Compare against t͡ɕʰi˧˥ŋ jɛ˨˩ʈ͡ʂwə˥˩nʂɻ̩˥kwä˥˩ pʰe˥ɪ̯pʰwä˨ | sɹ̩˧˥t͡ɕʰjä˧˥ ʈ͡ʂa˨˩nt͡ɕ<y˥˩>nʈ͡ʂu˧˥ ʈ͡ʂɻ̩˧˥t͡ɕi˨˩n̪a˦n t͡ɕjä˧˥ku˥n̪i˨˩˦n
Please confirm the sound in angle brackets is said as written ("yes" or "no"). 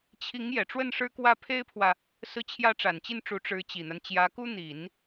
no